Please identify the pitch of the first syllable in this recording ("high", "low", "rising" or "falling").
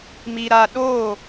low